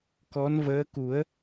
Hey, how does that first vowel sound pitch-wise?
rising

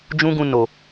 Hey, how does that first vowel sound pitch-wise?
high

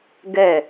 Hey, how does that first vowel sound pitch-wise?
falling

